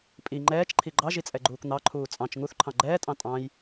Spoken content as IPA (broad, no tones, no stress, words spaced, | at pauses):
pʼi ŋ͡ǃɛːt͡ʃǃʰi ɡ͡ǃɑʒit͡sʼɛɡ͡ǃuːk n̪ɑǃʰuː t͡sʼɑ̃t͡ʃ ŋuθǃʰɑ̃ ɡ͡ǃɛːtʼɑ̃ tʼɑ̃j